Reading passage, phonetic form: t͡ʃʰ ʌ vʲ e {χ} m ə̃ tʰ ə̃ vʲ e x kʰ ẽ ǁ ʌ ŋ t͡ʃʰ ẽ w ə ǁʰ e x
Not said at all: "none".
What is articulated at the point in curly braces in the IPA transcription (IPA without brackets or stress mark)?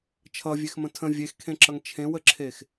x